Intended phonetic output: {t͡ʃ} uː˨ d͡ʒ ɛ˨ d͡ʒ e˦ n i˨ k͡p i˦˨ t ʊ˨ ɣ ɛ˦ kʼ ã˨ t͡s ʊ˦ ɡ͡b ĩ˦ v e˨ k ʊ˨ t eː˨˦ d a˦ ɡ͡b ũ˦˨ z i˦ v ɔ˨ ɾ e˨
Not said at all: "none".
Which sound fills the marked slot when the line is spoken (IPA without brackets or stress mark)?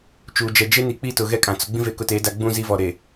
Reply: t͡ʃ